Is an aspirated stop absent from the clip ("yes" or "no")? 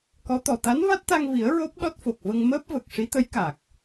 yes